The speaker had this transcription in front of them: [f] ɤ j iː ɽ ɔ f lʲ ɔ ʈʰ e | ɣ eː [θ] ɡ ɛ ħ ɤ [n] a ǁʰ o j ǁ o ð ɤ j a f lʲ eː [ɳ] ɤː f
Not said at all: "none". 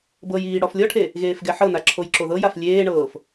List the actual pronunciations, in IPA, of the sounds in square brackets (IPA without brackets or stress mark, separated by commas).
b, f, n, ɳ